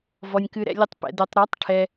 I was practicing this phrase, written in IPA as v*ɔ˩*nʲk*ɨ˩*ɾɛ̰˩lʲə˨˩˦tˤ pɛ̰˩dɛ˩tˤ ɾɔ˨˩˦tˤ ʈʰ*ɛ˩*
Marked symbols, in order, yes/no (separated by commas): yes, yes, yes